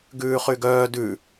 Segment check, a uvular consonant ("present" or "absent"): present